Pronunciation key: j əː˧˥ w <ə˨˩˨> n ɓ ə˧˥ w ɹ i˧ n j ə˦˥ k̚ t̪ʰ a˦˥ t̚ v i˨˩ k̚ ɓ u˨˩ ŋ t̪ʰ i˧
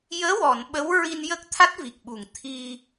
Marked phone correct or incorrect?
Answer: incorrect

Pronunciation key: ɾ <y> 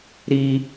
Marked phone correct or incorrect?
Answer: incorrect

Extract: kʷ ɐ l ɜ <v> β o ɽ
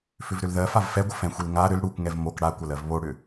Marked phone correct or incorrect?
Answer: correct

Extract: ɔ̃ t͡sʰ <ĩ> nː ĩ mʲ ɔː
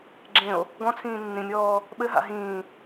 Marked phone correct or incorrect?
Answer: incorrect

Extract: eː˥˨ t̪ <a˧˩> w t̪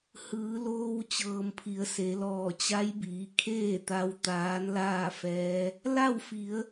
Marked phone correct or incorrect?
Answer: incorrect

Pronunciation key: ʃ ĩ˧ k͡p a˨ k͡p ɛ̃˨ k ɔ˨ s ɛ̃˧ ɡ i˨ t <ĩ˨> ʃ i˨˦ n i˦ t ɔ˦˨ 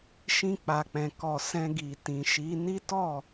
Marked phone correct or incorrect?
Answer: correct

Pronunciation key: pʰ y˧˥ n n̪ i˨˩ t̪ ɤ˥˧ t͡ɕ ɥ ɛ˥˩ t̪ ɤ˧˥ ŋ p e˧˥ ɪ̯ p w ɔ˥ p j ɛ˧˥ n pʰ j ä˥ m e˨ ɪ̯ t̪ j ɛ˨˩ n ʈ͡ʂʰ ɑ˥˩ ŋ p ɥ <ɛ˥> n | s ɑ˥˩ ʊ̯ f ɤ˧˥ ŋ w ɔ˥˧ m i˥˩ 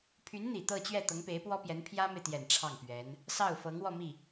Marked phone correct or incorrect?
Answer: incorrect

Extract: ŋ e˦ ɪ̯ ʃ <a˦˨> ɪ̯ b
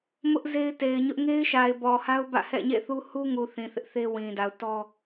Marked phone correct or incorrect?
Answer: incorrect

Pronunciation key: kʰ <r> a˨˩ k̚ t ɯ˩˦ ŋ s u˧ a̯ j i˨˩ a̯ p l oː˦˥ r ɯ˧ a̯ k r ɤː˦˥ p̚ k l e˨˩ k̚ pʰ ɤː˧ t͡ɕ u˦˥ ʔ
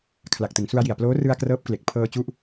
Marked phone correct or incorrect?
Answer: incorrect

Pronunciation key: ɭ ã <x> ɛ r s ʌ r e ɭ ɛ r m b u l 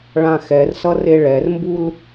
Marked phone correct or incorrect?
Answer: correct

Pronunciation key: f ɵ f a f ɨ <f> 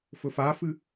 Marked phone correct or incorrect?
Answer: incorrect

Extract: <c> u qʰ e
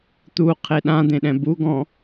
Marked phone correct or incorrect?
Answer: incorrect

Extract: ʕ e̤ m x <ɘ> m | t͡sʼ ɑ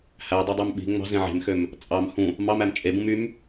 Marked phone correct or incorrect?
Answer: incorrect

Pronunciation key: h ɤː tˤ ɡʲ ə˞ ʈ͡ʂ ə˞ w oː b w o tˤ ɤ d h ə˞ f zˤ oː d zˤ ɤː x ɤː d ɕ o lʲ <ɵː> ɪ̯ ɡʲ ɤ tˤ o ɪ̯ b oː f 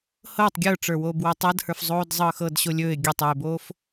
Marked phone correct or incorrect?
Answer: correct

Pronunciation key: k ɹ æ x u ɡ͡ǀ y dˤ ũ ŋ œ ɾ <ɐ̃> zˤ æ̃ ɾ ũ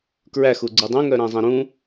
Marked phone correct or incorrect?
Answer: incorrect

